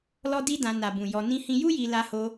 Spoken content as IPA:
l ɔ˦ d i˦ d ã˧ n a˨ b ũ˨ j ɔ˧ n ĩ˦ h ĩ˦ j u˦ j i˧ l a˧ h o˧

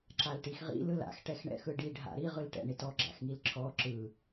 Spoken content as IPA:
ǁ a l ʈ i x ʁ ḭ l ɯ l a̰ x ʈ ɛ x ɳ ɛ̰ x ɯ ɖ i ɖʱ a̰ ɾ i ʁ ɯ l ʈ ɛ̰ ɳ i t ɔ ɡ͡ǁ a̰ x ŋ i l ǁʰ ɔ ǁ ɯ

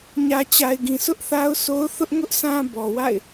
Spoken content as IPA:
ɲ ä˨ t͡ɕ a˨ ɪ̯ ɡ ĩ˨ sʰ ʊ˦ ʔ θ a˦ ʊ̯ s o˦ ʊ̯ θ ʊ˦ ʔ ŋ ʊ˦ ʔ s ã˦ b ɔ˨ w a̰˦˨ ɪ̯

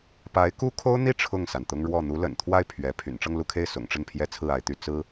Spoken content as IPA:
p a˧˥ ɪ̯ k u˥ kʰ o˥ ʊ̯ n̪ i˥˧ ʈ͡ʂʰ ʊ˥˩ ŋ s a˩ n t̪ ʊ˥ ŋ ɻ w ɔ˥˩ n̪ u˧˥ l ə̰˨˩ n t̪ʰ w a˥˩ ɪ̯ pʰ ɥ ɛ˧˥ pʰ y̰˨˩ n ʈ͡ʂ ɤ˥˧ ŋ l u˥˧ kʰ e˥˩ ɪ̯ s ʊ̰˨˩ ŋ ʈ͡ʂ ə˥˩ n pʰ j ɛ˥ t͡sʰ ɹ̩˥˩ a˧˥ ɪ̯ t̪ y˧˥ t͡s ɹ̩˥

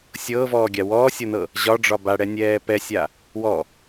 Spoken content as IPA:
sʲ ɤː v ɔː ɡʲ a w ɔː sʲ ɤ n ɤ | ʑ ɒ ɖ͡ʐ ɒ b a ɽ ɛ nʲ ɛː p ɛ sʲ a | w ɔ

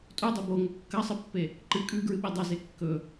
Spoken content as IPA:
tʼ u dˤ ɵ b o ŋ ɵ kː ɐ sˤ ɨ pː e | ǃ ɨ kʼ ʉ ɡ ɹ ɨ ɓ e dˤ ɐ z e kː ɵ

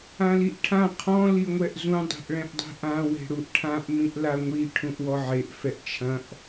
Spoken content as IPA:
ã l i ʔ ʈʰ ã qʰ ɔ̃ l i ŋʷ ɛ ʔ z ũ dˤ e̤ ʔ ɭ ɛ̃ ʔ dˤ e̤ ʔ ã w e̤ ɽ u ʔ ʈʰ ã ʔ m ĩ ʔ l a ŋʷ i ʈʰ ũ ʔ w ɔ ʕ e ʔ f ɛ ʔ t͡ʃʰ ɐ̃ ʔ

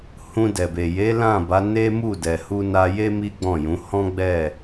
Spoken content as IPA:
h ũ˧ d ɛ˨ b e˨ j e˨˦ l ã˦˨ b a˨˦ n e˦ m u˦˨ d ɛ˨ h u˧ n a˧ j e˦ m i˦ ɡ͡b ɔ̃˦˨ j ũ˨˦ h ɔ̃˦ ɡ͡b ɛ˦˨

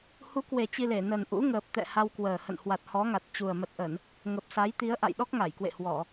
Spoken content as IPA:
h u˨˦ k w e˨˩ t͡ɕ i˧ l e˧˩ n ə˨˩ n ʔ ṵ˧˥ ŋ əː˨˩ p̚ t̪ ɛ̰˧˨ h a˧ w k w əː˨˩ h ə̰˧˨ n h w a˨˩ t̚ h ɔ˨˦ ŋ a˨˩ t̚ t͡ɕ u˨˩ ə̯ m ə˨˩ t̚ ʔ ə˧˩˨ n | ŋ ə˨˩ p̚ s a˨˦ j t̪ i˨˦ ə̯ ʔ a̰˧˨ j ɗ ɔ˦˥ k̚ ŋ a˧˩ j k w ḛ˧˨ h w ɔ˧˩˨

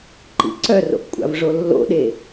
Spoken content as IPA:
ǃ ḭ ǀ œ r o̰ ʔ kʷʼ a̰ v ʐ o lː o̰ ɗ e

